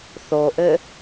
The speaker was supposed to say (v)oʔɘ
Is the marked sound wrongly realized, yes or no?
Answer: yes